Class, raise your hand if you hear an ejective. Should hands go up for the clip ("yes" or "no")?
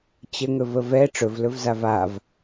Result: no